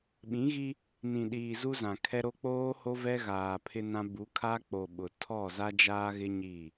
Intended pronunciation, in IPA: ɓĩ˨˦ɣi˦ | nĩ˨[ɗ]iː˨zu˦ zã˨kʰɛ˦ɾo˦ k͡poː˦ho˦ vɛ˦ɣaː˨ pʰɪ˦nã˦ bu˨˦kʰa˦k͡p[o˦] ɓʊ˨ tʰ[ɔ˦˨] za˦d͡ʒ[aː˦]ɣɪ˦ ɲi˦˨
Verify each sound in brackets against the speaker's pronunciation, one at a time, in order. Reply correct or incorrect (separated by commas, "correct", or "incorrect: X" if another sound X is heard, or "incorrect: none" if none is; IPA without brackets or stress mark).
correct, incorrect: o˨, correct, correct